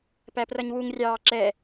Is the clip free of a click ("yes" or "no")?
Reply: no